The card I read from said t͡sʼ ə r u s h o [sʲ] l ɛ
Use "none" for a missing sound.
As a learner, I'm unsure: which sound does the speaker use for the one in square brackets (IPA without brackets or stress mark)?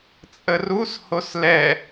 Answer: s